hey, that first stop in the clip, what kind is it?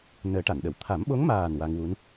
plain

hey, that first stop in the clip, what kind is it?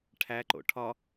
aspirated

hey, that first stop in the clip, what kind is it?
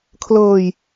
aspirated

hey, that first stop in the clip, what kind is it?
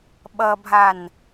implosive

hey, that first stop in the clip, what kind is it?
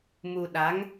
implosive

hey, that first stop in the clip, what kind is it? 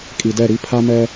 ejective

